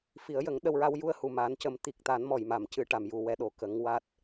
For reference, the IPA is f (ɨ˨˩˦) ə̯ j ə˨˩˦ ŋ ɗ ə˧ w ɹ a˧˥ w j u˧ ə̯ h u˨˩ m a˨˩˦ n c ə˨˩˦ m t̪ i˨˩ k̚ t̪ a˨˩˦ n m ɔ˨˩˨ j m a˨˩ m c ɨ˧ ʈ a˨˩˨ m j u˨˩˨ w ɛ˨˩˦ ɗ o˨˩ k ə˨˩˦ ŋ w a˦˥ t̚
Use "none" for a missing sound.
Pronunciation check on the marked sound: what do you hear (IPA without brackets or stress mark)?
i˨˩˦